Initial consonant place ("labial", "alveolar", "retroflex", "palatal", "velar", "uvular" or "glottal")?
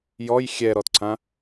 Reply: palatal